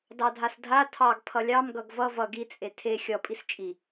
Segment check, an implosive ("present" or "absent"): absent